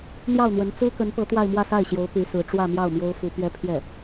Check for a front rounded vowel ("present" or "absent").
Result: present